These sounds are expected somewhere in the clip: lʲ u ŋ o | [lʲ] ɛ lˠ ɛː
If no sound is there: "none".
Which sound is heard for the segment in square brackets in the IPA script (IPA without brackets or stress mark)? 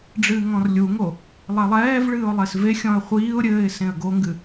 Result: lˠ